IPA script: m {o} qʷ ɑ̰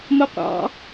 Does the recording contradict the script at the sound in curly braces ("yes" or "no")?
no